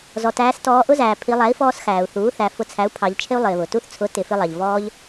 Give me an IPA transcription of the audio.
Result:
z ɔ˩ t æː˩˧ s t ɔː˩˧ ʔ ʊ˧ z æː˩ pʰ i˩˧ lˠ æ˩˥ i̯ f ɔː˧ s x æː˩ u̯ θ uː˩˥ θ æ˩˧ f ʊ˩˥ t͡sʰ æ˩˥ u̯ pʰ ɑ˩˧ ʎ t͡ʃʰ ɪ˧ u̯ lˠ ɪː˩ β ʊ˩ t u˧ θ t͡sʰ ʊ˩˥ t ɪ˩˧ f ɪ˧ lˠ ɑ˩ ʎ v ɔː˧ ʎ

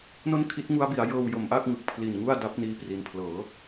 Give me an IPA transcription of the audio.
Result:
n o˥˩ n kʰ i˦˥ t̚ ŋ u˦˥ a̯ b i˩˦ a̯ j ɤː˧ w j o˩˦ m ʔ a˥˩ k̚ ŋ ɯ˨˩ k̚ pʰ l i˨˩ n ŋ u˥˩ a̯ d a˦˥ p̚ n iː˥˩ p r i˧ n pʰ l ɤː˩˦

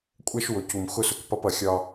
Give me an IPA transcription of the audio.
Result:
kʷʼ ɛ˦ ʃ w ʊ˨ c u˨ m x ʊ˦ s ʊ˨ k p ʌ˦ p ʌ˨ xʲ ɒ˦

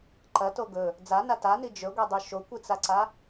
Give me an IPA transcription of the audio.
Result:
ǃ ɐ t o ɡ ɵ | d͡z a n a t a n i d͡ʒ ɵ ɡʷ e dˤ ʉ ʃ o kʷ ɨ t͡s a ǀ a

